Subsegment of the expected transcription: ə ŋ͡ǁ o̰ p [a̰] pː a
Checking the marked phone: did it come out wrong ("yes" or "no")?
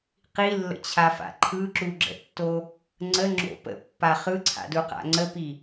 yes